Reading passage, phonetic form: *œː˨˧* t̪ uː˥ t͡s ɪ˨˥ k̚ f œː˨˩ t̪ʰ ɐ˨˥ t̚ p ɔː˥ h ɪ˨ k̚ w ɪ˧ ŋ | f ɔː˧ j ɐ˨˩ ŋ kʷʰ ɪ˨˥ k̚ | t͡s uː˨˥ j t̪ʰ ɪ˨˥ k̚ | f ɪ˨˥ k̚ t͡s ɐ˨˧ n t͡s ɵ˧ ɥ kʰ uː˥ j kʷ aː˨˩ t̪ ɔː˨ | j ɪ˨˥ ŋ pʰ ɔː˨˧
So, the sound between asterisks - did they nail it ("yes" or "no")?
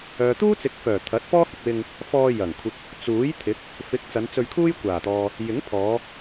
no